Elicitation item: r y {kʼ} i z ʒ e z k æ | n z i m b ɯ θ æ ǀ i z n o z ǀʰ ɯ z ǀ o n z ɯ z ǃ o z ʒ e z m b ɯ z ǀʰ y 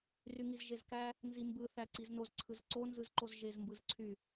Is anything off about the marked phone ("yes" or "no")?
yes